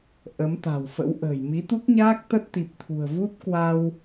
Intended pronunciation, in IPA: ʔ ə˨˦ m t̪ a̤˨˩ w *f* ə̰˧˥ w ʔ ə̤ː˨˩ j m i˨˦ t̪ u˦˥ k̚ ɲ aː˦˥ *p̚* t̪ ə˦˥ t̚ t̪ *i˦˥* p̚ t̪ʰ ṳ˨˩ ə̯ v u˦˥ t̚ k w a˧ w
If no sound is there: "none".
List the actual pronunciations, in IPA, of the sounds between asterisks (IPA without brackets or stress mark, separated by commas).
f, k̚, i˨˩